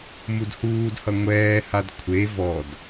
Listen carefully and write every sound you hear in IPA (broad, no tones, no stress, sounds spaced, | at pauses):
m u d h uː d h ʌ ŋʷ ɛː h a d kʷʰ e v ɔ d